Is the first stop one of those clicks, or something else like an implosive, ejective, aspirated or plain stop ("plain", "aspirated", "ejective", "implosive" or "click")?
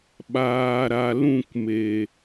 implosive